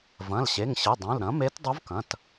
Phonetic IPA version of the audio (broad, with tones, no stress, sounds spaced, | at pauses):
v ɐ̃˩˧˩ l ɕ e˩˧˩ ŋ ɕ ɨ˩˧˩ dˤ ũ˩˧˩ l ɾ ɐ̃˩˥ m e˧˥ t dˤ u˧˥ v k ɐ̃˩˧˩ t